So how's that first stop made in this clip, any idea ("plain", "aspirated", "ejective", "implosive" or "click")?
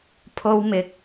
aspirated